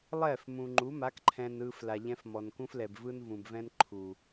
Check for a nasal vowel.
present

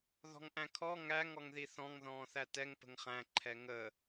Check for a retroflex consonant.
absent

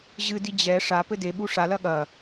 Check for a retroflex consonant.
present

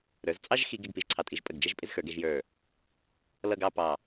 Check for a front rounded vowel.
absent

